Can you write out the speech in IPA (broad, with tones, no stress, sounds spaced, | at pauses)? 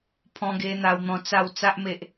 pʰ ɔ̃˧ ɡ e˧ n̪ a˧ w n̪ ɔ̃˧ t͡s a˥˧ w t͡s a˦ ʔ m e˨ ʔ